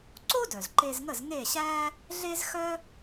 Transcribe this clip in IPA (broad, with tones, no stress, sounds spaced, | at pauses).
ǀ o˥ d œ˩ z ǃ e˧ z ŋ ə˥˩ z ŋ e˥˩ ɕ æ˥ | ɮ e˥ z x œ˥